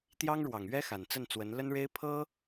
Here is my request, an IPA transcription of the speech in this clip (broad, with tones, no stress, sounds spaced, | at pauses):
t̪ j ɑ˥ ŋ ɻ w ɑ˨˩ ŋ ɥ ɛ˥ x a˨˩ n t͡s ə˥˩ n t͡s w ə˧˥ n l ə˥ n ɻ e˥ ɪ̯ pʰ ɤ˥